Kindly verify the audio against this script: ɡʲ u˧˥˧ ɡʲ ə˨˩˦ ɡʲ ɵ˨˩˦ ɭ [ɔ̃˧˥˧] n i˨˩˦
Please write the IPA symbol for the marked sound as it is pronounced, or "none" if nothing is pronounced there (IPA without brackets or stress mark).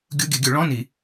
ɔ̃˧˥˧